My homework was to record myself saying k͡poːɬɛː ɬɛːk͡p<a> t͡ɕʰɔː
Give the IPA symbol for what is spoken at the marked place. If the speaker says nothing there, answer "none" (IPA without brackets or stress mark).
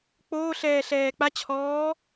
a